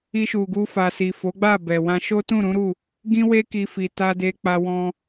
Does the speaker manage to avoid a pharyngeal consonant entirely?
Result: yes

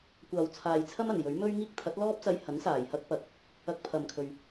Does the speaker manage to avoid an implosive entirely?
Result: yes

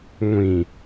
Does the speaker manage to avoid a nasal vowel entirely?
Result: no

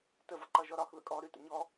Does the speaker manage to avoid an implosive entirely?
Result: yes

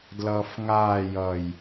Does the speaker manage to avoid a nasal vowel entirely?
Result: yes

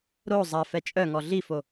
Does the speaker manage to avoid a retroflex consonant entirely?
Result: yes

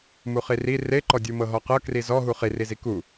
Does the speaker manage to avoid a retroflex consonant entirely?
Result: yes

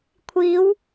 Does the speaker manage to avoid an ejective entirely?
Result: yes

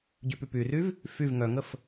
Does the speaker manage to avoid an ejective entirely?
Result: yes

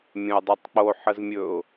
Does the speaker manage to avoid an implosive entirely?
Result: yes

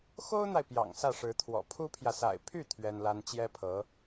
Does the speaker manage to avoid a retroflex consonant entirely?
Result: no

